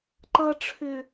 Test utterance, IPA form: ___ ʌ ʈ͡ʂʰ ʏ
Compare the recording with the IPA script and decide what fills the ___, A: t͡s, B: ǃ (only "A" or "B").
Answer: B